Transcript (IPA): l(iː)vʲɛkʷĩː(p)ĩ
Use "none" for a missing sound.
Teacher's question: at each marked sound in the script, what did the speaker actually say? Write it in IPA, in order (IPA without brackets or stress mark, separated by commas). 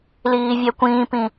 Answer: iː, p